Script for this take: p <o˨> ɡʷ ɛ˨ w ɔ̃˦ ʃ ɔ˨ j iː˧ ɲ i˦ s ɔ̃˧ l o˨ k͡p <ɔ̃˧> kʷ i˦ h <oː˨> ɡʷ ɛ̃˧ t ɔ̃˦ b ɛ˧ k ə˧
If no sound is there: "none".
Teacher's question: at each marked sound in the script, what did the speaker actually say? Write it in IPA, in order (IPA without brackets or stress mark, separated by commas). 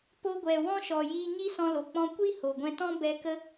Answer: o˧, ɔ̃˧, o˨